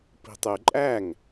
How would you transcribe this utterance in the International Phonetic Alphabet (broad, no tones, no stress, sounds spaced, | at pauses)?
p i̤ tˤ ʉ ǃʼ æ ŋ